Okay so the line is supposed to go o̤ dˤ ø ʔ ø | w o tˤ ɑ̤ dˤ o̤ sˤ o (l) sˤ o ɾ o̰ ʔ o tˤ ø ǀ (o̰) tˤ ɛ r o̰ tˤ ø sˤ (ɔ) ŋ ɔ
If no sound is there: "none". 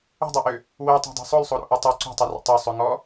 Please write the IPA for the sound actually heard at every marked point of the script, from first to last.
l, o̤, ɵ

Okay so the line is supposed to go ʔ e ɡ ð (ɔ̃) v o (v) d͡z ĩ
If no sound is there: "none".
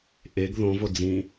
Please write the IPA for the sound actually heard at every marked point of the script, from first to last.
õ, none

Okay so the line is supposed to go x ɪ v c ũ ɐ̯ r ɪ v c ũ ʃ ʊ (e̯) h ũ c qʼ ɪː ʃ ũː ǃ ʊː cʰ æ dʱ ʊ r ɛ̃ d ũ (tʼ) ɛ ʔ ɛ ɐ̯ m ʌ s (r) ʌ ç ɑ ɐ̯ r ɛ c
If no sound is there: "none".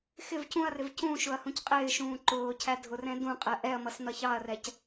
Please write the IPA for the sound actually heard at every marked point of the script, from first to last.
ɐ̯, qʼ, n̪

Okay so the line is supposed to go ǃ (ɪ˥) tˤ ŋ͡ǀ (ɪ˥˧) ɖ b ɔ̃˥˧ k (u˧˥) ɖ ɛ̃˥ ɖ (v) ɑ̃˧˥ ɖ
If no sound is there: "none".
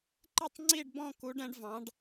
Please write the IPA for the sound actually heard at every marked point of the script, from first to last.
ɪ˥˧, i˥˧, u˧˥, v

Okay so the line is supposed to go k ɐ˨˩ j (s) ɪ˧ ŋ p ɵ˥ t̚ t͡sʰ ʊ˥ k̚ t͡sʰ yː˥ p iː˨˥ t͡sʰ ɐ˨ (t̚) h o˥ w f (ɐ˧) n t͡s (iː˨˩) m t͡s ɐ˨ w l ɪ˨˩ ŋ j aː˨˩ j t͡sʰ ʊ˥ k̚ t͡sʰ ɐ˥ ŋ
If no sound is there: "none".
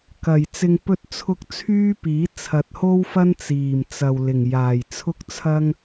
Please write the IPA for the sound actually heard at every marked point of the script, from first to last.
t͡s, t̚, ɐ˥, iː˨˩

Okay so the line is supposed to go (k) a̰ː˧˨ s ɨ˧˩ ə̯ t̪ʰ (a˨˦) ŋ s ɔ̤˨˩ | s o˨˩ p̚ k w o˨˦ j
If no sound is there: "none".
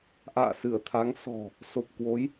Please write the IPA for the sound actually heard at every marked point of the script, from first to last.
ʔ, a˨˦

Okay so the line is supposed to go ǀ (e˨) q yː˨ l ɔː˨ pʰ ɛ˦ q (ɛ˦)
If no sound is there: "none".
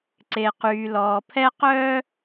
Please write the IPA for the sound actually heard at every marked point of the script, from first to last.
e˨, œ˦

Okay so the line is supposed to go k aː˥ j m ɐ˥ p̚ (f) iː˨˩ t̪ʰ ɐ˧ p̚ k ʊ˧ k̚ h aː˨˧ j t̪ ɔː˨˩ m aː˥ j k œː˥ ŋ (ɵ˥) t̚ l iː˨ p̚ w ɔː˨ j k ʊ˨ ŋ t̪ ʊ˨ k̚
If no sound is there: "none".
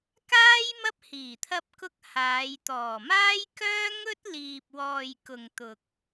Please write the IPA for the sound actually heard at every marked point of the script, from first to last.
h, ɵ˥

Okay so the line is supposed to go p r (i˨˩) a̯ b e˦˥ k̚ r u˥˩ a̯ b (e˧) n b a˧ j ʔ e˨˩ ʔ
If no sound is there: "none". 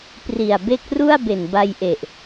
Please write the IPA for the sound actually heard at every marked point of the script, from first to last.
i˨˩, e˨˩

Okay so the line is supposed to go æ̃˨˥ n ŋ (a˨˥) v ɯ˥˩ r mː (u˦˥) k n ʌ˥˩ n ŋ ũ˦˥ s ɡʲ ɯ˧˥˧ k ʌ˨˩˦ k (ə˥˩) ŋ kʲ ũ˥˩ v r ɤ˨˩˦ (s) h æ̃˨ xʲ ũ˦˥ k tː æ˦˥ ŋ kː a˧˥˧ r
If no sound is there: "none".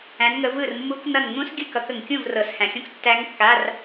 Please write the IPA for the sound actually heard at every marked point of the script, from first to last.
ə˨˥, u˦˥, ə˨, s

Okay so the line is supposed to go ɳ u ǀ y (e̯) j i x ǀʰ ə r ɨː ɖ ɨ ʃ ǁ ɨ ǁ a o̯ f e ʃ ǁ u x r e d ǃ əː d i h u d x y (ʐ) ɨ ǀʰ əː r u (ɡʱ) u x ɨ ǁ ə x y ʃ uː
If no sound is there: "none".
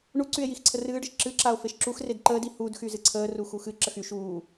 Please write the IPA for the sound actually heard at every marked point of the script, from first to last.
e̯, z, x

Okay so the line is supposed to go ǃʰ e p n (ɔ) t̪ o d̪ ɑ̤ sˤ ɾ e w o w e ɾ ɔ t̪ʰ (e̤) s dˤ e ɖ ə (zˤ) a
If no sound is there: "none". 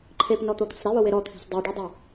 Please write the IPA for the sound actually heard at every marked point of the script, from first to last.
ɔ, e̤, dˤ

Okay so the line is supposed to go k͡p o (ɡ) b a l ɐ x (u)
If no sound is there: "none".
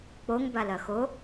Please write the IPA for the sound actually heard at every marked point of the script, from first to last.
ŋ, o

